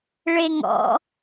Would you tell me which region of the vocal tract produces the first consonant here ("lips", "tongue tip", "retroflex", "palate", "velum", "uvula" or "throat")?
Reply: retroflex